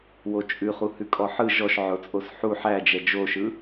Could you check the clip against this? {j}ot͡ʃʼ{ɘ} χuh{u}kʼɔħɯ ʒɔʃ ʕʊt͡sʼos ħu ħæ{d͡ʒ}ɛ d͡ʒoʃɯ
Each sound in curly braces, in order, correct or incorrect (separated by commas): incorrect, incorrect, incorrect, correct